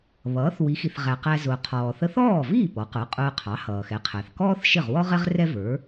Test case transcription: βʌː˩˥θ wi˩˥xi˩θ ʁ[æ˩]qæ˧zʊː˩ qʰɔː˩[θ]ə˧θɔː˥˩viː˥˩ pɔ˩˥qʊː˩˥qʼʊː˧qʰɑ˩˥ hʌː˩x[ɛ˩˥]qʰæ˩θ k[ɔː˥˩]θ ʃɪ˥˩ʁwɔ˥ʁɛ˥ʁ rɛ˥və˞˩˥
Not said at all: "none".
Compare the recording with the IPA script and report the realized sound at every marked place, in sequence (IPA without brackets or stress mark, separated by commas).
æ˩, θ, ɛ˩˥, ɔː˥